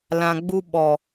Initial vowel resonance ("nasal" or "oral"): nasal